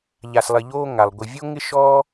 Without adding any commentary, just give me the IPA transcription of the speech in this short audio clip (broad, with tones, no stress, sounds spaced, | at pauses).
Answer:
ʎ a˨ s lˠ ɪ˨ ʎ oː˦ ŋ a˩ lˠ ɡʷ ɪ˨ vʲ o˥ ŋ ɪ˥ ʃ ɔ˥